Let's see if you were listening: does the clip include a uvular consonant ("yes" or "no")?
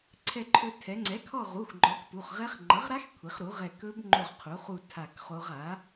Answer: yes